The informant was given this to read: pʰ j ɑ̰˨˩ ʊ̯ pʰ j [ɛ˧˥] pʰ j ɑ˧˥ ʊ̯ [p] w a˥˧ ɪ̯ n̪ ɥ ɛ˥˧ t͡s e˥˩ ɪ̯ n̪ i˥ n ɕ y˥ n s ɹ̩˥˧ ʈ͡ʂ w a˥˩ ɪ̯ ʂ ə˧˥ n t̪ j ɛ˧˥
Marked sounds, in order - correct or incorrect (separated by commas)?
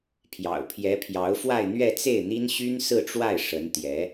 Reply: correct, incorrect